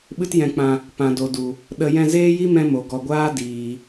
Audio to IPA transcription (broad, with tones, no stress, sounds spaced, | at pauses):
ɓ ɨ˦ t j ɛ̃˧ k͡p ã˧ | p ã˨ d o˨ d u˨ | ɗ ə˧ j ɛ̃˧ z eː˦ j i˦ m ɛ̃˦ m o˨ ɡ ɔ˨ ɡʷ aː˦ d iː˨